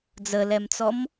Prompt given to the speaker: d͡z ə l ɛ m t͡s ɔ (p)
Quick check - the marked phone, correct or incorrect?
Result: incorrect